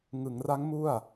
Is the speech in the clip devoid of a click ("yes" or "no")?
yes